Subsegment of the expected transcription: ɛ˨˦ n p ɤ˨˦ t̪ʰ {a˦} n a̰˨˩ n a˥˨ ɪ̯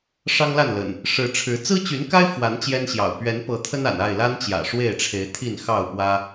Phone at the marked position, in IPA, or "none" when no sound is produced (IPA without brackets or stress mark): ə˦